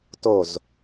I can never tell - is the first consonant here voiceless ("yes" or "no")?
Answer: yes